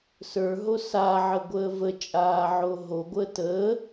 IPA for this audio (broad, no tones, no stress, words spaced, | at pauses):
sə˞ɦo saʕəɡʷəː vət͡ʃʼaːʕo ɦoɡʷəː təː